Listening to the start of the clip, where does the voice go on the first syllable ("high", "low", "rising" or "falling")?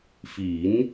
rising